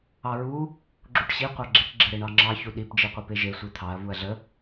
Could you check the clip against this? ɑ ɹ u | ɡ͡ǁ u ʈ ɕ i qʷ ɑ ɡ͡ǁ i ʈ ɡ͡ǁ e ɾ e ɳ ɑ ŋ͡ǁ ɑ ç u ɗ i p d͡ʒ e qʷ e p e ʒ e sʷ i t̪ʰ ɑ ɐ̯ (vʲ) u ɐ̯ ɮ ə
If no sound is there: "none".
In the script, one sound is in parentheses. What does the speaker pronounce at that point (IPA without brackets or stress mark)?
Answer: v